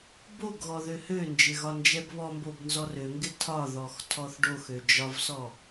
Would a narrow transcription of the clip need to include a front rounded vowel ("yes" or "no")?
yes